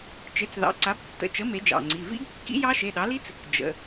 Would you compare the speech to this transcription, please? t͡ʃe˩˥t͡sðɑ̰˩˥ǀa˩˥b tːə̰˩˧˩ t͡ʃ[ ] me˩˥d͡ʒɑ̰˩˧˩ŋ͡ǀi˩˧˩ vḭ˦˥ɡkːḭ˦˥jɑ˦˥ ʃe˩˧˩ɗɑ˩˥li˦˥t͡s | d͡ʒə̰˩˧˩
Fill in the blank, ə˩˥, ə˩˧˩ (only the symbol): ə˩˥